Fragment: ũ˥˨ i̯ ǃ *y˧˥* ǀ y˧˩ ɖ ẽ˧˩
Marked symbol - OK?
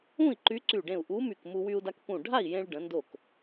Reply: yes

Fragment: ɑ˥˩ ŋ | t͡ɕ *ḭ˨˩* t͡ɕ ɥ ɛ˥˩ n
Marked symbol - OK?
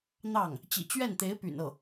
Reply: yes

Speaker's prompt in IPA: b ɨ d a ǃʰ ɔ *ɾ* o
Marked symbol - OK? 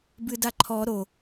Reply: yes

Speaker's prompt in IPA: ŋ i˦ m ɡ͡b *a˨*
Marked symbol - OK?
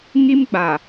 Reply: yes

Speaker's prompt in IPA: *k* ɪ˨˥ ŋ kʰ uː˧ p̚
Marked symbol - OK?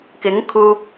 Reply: yes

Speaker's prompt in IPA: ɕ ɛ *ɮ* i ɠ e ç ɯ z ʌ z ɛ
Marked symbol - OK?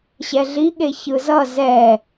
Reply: yes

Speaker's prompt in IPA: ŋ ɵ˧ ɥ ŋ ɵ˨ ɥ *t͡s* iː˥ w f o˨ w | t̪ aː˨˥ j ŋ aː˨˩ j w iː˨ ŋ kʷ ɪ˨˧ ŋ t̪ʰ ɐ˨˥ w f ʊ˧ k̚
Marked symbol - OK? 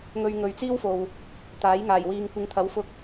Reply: yes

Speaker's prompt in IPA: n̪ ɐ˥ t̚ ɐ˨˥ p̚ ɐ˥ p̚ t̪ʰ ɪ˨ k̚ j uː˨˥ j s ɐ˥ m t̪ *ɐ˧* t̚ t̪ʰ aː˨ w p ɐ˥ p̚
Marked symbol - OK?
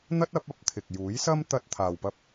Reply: yes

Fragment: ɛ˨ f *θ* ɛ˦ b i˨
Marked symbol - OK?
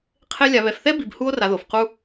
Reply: yes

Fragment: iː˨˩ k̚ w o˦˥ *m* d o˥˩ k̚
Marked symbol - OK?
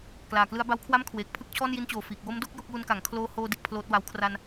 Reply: yes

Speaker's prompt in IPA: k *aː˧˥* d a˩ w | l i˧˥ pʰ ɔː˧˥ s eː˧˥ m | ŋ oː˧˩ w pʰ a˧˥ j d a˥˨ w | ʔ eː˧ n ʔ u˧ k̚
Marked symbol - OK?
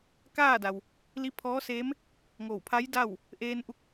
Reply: no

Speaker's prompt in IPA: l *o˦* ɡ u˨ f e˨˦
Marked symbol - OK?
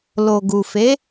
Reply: no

